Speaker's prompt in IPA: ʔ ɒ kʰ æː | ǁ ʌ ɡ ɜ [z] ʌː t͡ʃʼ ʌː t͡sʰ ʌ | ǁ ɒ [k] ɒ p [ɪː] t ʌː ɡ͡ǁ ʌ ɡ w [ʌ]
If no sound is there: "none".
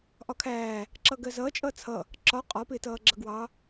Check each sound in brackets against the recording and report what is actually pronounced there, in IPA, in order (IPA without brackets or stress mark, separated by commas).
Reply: z, qʼ, ɪː, ɑ